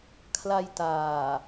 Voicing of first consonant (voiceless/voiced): voiceless